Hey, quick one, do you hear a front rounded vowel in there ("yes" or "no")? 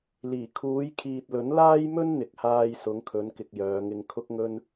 yes